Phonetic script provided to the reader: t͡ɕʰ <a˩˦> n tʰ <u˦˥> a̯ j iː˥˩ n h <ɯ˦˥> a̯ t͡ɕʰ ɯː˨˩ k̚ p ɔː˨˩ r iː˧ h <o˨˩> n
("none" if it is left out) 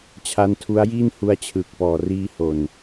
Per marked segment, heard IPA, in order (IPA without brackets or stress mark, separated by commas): a˦˥, u˦˥, u˦˥, o˨˩